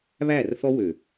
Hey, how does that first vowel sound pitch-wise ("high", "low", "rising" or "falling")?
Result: falling